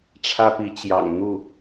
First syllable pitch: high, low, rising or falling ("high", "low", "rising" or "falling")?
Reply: high